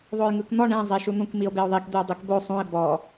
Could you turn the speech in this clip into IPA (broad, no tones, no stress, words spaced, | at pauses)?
ðˤojŋɯkn̪ɔ ɳẽ zˤeʃun̪ũk mio̯beo̯ðˤik d̪eo̯dˤikbo sˤũe̯ bɔ